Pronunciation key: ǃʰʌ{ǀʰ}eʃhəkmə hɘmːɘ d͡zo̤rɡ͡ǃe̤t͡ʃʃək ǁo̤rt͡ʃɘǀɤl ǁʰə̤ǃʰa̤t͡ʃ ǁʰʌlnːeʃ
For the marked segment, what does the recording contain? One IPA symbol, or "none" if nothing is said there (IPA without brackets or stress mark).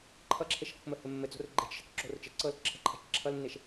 ǁʰ